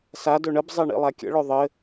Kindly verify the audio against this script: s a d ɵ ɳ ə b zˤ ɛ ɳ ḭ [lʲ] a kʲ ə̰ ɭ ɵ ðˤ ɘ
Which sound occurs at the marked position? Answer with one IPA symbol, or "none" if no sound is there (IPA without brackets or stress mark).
lˠ